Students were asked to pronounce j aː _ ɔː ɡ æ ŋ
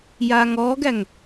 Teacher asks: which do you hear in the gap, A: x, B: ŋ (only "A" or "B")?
B